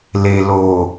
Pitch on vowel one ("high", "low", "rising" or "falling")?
low